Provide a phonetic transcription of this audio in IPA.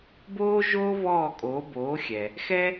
b oː˥ ʒ oː˥ v ɔː˥˩ kʼ oː˩˥ b oː˩˥ xʲ ɛ˩ | x ɛ˥

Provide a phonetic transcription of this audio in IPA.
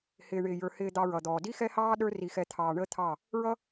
h ɪː˨ ɳ ɪː˨ j ə˞˨ h ɪː˧ d̪ ɑ˧ ɹ ʌ˨ d̪ ɔː˨ d i˦ x ɛ˦ h ɑː˦ ɗ ə˞˦ r i˧ x ɛ˧ t̪ʰ ɑː˧ ɳ əː˦ t̪ʰ ɑ˦˨ | ɹ ʌ˦

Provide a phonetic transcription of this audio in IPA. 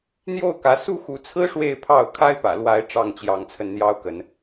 n̪ j o˥˨ ʊ̯ k ä˨˦ s u˥˨ x u˨˦ t͡sʰ ɹ̩˦ ʂ w e˥˨ ɪ̯ pʰ ɑ˥˨ ʊ̯ kʰ a˦ ɪ̯ p ä̰˨˩ l w a˨˦ ɪ̯ ʈ͡ʂ ɑ˥˨ ŋ t͡ɕ j ɑ˨˦ ŋ t͡sʰ ə˧ n n̪ j ɑ˦ ʊ̯ k ə˨˦ n

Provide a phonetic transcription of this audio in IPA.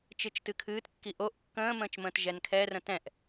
t͡ʃ ɨ t͡ʃ t ɨ kʰ ɨː t kː i ʔ o ʔ kː ə̃ː m ə̃ː t͡ʃ m ə̃ː t ʒ ɛ n kʰ ɛ r ə̃ t ɛ̃ ʔ

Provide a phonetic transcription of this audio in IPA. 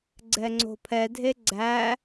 ɡ͡ǀ ɛ ŋ͡ǀ o̤ pʰ ɛ dʱ e ɡ͡ǀ æ

